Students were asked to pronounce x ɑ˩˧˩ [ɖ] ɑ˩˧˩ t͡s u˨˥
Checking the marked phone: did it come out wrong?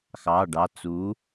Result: no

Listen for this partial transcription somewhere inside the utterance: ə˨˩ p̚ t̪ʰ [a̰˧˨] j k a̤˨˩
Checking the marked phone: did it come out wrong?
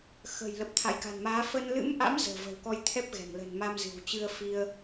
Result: no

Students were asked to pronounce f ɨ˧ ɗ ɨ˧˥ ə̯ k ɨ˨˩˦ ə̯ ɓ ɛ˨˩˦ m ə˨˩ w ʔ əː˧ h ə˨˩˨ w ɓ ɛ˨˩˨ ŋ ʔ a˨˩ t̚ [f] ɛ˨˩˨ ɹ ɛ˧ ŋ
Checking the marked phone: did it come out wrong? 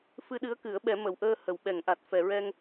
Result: no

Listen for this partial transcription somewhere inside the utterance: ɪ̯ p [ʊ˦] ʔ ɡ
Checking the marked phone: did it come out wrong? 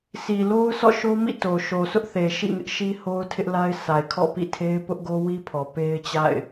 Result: no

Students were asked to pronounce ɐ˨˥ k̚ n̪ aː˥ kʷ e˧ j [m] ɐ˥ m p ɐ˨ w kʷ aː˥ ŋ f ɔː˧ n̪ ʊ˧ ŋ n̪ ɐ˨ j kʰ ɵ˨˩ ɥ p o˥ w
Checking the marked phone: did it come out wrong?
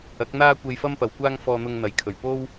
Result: yes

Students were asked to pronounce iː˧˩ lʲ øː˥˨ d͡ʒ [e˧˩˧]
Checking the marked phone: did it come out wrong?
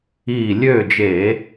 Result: no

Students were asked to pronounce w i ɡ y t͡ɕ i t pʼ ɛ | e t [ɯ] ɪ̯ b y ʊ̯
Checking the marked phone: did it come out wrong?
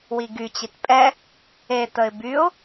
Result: yes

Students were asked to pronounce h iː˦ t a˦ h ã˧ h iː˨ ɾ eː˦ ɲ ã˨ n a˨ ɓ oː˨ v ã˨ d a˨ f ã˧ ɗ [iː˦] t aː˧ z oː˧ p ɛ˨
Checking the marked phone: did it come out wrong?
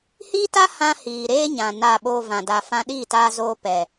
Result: yes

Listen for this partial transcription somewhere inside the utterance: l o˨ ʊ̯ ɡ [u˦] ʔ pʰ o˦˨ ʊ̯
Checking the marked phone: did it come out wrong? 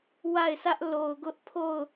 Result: yes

